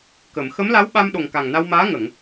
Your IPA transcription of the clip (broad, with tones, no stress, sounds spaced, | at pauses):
k ə˨˩˨ m x ə˧˥ m l a˧˥ w ɓ a˧ m ɗ o˨˩ ŋ k a˨˩ ŋ n a˧ w m aː˧˥ ŋ ə˨˩˨ ŋ